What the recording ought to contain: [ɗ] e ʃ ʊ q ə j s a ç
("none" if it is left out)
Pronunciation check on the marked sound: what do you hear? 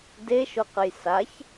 d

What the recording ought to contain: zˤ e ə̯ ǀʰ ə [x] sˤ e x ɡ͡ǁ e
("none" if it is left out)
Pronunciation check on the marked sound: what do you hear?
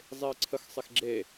x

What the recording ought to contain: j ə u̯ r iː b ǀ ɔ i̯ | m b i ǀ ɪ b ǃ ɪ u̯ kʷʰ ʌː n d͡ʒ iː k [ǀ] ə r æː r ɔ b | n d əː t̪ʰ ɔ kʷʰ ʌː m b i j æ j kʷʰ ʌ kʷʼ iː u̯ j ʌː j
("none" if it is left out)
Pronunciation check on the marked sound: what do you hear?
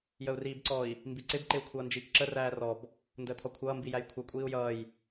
ǁ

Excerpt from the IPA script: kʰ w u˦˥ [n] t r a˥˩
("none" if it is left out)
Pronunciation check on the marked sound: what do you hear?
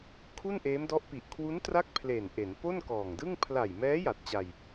n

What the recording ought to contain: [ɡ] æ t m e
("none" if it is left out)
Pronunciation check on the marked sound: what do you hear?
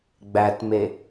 ɡ͡b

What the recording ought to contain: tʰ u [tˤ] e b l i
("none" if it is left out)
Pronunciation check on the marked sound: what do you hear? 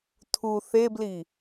θ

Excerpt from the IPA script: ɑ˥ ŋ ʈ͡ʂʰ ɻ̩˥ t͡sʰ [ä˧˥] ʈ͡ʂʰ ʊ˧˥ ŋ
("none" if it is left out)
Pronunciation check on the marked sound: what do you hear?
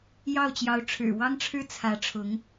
ä˧˥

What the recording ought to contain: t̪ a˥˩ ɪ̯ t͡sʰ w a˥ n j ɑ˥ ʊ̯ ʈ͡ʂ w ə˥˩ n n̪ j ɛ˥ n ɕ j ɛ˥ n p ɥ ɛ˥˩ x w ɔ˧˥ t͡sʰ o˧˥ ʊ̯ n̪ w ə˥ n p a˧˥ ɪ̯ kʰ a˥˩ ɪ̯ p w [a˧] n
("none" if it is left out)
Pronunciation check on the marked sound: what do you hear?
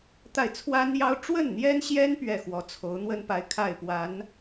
a˧˥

